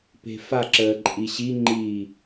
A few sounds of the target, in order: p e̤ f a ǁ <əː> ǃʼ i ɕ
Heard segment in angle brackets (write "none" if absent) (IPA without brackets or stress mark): əː